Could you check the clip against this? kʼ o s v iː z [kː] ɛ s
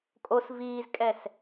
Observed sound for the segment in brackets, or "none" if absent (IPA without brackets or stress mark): kʼ